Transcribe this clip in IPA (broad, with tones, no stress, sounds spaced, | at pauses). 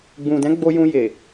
ɡ͡b ũ˨ d ɛ̃˨˦ ɡ͡b o˧ j ũ˧ j e˨